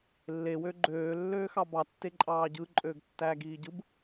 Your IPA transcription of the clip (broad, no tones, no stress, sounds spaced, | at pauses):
lː e w ø ɡ͡ǃ øː lː øː x ɑ b ɑ tː e ǃʼ ɑː ɟ ɯ ǃʼ øː ɡ tː æː ɡ iː ɟ ɯ b